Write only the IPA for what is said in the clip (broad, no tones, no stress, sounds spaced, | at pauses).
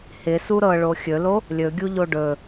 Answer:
h ɪ s u ɾ ɤ ɭ o xʲ ɵ l o | lʲ ɵ ɡʲ u ʎ o ɖ ɵ